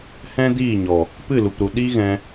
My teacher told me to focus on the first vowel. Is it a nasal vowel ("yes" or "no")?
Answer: yes